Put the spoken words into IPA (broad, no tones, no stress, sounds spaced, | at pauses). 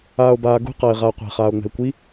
aː o̯ b aː ɡ ṳ q ɐː e̯ ʁ aː qʷ ɛ̤ χ aː o̯ ŋ͡m ɛ̤ e̯ kʷ i